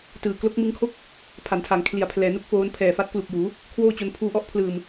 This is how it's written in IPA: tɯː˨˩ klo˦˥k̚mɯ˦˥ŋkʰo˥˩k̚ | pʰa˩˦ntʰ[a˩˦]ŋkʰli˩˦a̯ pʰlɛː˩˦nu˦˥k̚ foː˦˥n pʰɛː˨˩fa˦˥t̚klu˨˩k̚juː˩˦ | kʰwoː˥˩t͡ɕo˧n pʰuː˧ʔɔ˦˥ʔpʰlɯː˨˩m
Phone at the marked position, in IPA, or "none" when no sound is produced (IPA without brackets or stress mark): a˩˦